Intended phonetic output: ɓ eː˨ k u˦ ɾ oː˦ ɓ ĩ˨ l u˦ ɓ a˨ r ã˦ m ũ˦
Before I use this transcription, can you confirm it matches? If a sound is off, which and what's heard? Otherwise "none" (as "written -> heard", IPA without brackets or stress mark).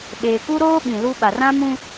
none